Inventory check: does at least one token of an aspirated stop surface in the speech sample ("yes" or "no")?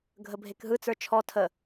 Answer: yes